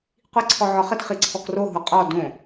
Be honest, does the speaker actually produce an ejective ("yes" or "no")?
yes